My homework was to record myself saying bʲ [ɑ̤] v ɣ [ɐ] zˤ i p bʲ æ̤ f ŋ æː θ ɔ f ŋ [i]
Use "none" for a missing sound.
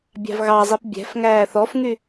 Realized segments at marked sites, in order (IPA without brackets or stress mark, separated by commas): ɑ̤, ɑ, y